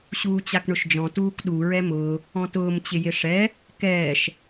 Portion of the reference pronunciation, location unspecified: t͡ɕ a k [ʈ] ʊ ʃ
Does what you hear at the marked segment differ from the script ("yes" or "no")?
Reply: yes